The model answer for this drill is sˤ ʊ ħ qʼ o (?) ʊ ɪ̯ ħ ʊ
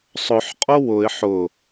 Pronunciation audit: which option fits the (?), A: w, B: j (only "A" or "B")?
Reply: A